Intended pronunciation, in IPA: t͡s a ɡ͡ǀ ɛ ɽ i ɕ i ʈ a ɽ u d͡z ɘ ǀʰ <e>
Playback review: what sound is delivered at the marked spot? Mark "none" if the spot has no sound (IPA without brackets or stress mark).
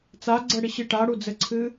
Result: ɨ